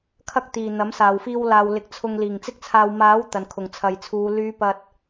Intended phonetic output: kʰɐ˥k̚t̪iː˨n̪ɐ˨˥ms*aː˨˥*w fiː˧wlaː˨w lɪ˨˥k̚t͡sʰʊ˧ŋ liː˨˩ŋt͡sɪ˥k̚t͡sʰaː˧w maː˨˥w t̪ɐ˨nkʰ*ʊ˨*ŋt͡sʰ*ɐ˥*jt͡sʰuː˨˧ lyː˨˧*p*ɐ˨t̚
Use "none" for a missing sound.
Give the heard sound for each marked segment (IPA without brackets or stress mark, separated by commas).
aː˨, ʊ˨˩, ɐ˨, p